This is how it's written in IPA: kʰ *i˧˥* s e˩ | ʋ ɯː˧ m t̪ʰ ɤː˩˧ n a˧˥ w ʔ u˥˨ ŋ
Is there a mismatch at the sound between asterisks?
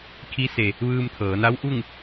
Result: no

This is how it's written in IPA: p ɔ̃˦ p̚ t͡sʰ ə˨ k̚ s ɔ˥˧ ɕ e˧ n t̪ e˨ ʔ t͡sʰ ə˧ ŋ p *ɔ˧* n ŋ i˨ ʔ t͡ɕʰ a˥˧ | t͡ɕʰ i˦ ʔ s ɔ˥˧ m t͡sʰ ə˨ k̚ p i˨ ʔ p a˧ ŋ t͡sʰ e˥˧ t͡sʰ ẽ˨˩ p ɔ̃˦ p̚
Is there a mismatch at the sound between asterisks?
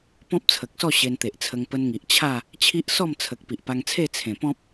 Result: yes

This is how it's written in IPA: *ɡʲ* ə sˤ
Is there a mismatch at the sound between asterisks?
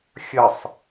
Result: yes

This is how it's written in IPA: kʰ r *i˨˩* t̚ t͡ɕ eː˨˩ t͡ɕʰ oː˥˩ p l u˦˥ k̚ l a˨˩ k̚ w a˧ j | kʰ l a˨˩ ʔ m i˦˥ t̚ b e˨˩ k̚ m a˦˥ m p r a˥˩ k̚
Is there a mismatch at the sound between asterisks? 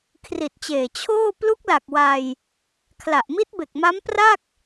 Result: no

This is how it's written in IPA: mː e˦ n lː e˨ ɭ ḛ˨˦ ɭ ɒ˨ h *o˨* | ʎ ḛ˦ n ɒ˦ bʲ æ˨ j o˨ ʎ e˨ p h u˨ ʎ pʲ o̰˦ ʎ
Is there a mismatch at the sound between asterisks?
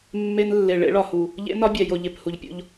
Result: yes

